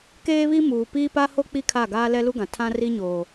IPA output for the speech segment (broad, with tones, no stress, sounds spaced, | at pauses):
k eː˦ β i˦ m uː˨ p iː˦ p a˦ h o˦ k͡p i˦ kʰ a˦˨ ɡ aː˦ l ɛ˦ l u˦ ɡ ã˨ tʰ ã˦ r i˦ ɲ o˨